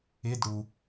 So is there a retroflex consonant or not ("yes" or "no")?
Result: yes